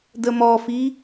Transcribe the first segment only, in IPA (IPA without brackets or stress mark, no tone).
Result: d